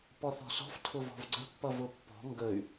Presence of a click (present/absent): present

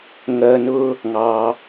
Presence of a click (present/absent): absent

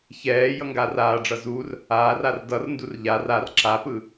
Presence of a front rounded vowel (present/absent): absent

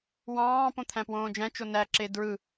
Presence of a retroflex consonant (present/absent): absent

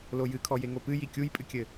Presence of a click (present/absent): absent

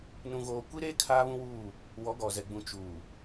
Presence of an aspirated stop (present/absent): present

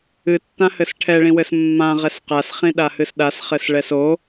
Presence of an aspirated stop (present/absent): present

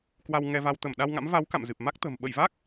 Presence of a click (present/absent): absent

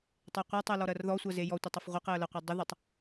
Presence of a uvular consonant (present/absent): present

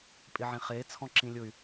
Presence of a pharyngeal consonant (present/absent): present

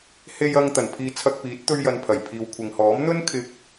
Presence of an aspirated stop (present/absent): present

